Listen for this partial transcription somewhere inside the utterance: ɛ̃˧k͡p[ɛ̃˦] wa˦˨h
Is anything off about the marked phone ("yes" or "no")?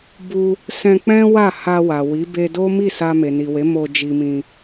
no